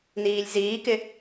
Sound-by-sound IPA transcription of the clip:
n iː lʲ z iː k ɪ

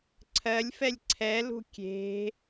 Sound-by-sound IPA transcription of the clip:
ǀʰ ɜ lʲ f ɛ lʲ ǀʰ ɛ l ṳ kʲ e̤

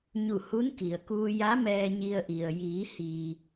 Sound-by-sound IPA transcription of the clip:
ɲ u˧˩ h u˧˥ n k i˩ ə̯ k uː˧ j a˧˥ m ɛː˧ ɲ i˧ ə̯ ʔ i˩ ə̯ j iː˩˧ h iː˩

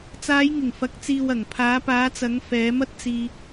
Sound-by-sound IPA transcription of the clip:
t͡s aː˨˧ j ŋ ɪ˨˩ ŋ f ɐ˨ k̚ t͡s iː˨ w ɐ˨˩ ŋ pʰ aː˨˧ p aː˨˧ t͡s ɐ˨˧ ŋ f ɛː˨˧ m ɐ˥ t̚ t͡s iː˧

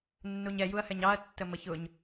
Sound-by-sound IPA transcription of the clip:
nː u ɲ ɛ j u ɐ̯ h ɛ ɲ ɑ ɐ̯ tː ə m ə ç ʊ ɲ

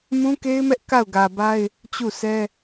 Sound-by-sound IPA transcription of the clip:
m ũ˦ k e˦ ɪ̯ m ɛ˦ ʔ k a˦˨ ʊ̯ ɡ ä˨ b a˦ ɪ̯ | t͡ɕ u˦˨ s ɛ˦

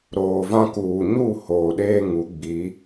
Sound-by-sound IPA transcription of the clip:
ɾ oː˨ v ã˦ k uː˨ ɲ u˦˨ h oː˨ ɗ eː˦ ŋ u˨˦ ɡ͡b i˨˦

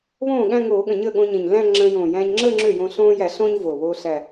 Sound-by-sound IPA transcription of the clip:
β õː˥˩ ɠ æ̃˥˧ ŋ oː˧˩˧ ɠ ə̃˨˩ ɲ əː˥˩ ɠ õ˧ ɲ ẽ˨˩ ɲ l æ̃˥˧ ŋ͡ǁ ə̃ː˧ j õː˨˩ j æ̃ː˧ ɲ ŋ͡ǁ əː˥˧ ŋ͡ǁ ø˥˩ j õː˧ ɬ õː˧ j æ˧˩˧ ɬ õː˧ ɲ v oː˨˩ β oː˧ ɬ æ˨˩

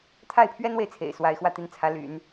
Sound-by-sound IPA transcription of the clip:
t̪ʰ a˥˩ ɪ̯ pʰ ɥ ɛ˥ n w e˨ ɪ̯ t͡sʰ ḛ˨˩ ɪ̯ s w a˧˥ ɪ̯ x w ä˥˧ t̪ i˥˩ n t͡sʰ ä˧˥ l y̰˨˩˦ n

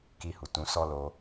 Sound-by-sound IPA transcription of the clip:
k i˧ h u˨ t ũ˨˦ s ɔ˦ l o˧

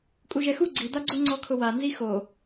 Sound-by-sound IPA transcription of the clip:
kʼ u ʒ ɛ x u ɡ͡ǀ i d̪ a ɡ͡ǀ u ŋ͡ǀ ɔ kʰ ʊ w a n z i x o

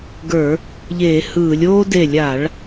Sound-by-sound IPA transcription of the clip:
ɡ ə˞˧˩˧ | ʎ eː˧˩˧ h ɯː˧˩˧ lʲ oː˦ d e˧˩ lʲ a˧˩˧ ɭ

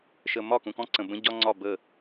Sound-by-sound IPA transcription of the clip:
ʃ ə˨ m ɒ˦˨ k ũ˨ k ɔ̃˦ ǀ ə̃˨ b ə̃˦ ɟ ɒ˦ ŋ͡ǀ ɒ˦˨ b ə˦˨

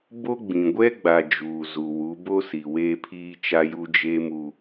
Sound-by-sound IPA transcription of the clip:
b o˦ ɡ͡b ĩ˨ ɡʷ ɛ˦ ɡ͡b a˨ d͡ʒ uː˨ z u˨ w u˨˦ b o˦ s i˨ w eː˦ pʰ iː˦ t͡ʃ a˦ j u˦ d͡ʒ eː˦ m u˦

